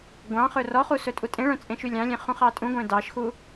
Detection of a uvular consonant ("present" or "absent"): present